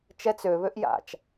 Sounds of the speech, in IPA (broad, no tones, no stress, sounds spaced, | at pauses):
t͡ʃ ɛ t͡s ø β ø ʔ j a̰ t͡ʃ